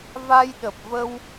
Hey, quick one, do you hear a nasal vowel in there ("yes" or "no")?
no